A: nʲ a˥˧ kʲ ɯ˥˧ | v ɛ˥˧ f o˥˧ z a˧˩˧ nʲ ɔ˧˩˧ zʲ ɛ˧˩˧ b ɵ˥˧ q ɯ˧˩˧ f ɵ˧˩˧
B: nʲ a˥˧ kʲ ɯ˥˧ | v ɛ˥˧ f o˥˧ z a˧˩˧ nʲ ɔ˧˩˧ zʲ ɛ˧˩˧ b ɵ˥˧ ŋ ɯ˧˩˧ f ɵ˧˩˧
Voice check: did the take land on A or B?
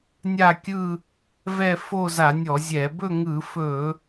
B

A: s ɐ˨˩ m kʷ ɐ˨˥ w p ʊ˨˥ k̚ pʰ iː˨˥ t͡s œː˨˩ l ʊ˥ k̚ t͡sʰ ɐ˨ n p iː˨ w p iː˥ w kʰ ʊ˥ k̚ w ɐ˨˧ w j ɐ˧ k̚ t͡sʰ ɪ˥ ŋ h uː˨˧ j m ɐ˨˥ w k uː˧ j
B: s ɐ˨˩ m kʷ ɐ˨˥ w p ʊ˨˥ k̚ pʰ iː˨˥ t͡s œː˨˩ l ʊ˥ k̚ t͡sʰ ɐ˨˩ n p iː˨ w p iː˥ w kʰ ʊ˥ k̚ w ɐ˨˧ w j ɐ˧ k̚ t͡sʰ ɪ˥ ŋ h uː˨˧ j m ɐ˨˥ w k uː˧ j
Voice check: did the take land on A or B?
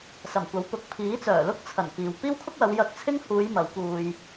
B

